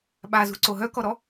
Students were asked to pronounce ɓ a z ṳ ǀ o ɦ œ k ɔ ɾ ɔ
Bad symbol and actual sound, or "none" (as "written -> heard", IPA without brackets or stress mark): none